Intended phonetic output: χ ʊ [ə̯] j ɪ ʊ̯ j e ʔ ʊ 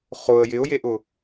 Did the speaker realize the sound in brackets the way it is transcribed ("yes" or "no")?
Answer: yes